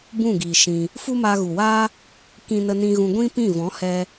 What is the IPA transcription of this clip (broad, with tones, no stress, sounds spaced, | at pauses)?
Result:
b ũ˦˨ ɡ iː˨ ʃ ĩ˧ | f u˦ m aː˧ ɣ u˨ w aː˦ | k ĩ˧ n ə˧ n ĩ˧ ɣ ũ˧ ɡʷ ĩ˦ p ĩ˦˨ v ɔ̃˨˦ h ɛ˧